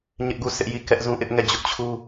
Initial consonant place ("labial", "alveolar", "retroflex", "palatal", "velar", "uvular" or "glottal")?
palatal